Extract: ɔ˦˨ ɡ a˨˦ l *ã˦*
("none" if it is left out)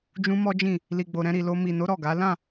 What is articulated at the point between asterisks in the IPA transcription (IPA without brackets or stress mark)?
ã˦˨